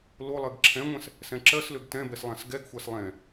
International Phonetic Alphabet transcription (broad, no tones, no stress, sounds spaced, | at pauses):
l o lˠ ɜ ɡ ǁʰ ɛ̃ ŋʷ ɛ̃ s | s ɛ̃ ǁ ɜ s l ø ɡ t ɛ̃ b ɛ s lˠ ã s ɡ ɛ ɡ xʷ a s lˠ ɛ̃